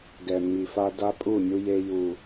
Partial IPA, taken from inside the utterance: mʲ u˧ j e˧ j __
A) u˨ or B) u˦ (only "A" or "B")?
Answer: A